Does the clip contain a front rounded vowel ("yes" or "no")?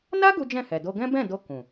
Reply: no